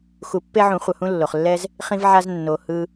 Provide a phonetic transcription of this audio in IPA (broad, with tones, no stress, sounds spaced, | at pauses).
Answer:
x u˨˩˦ pː e˧ ʕ ũ˨˩˦ χʷ ʌ˩ h ũ˧ lː o˩ χ lː ɛ˧ z | χ ĩ˧ v ʕ a˧ z nː o˩ h ɯ˧